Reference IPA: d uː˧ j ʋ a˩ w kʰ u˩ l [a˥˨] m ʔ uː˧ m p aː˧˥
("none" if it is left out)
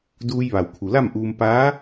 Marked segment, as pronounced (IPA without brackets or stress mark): a˥˨